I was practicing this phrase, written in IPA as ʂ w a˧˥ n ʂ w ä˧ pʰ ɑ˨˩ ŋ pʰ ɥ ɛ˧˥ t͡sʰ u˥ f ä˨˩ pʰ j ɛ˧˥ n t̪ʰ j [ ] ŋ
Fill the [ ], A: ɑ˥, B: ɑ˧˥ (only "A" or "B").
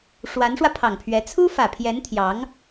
B